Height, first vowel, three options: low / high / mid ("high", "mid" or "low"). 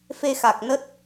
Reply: mid